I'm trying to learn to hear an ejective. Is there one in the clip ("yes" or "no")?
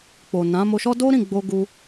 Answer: no